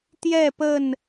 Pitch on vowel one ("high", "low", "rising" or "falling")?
falling